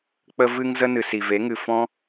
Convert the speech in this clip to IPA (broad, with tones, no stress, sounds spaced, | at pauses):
k͡p ə˦ v ɨ˦ ŋ z ə˦ n ɨ˨ s i˨ v e˨˦ ŋ ɨ˨ f ɔ̃˦